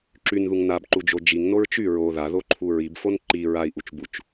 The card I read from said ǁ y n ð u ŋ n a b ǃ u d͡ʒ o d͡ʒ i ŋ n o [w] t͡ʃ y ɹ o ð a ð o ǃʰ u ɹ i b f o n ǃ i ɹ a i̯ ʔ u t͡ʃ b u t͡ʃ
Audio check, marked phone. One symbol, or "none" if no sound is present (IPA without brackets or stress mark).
ɹ